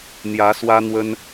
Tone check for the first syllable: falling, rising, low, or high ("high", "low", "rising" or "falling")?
rising